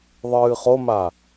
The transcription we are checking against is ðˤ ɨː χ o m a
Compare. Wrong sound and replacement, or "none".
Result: none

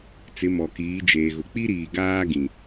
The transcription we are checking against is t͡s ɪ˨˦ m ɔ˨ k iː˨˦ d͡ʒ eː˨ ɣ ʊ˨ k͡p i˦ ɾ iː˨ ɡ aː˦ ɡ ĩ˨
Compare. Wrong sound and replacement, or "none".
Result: none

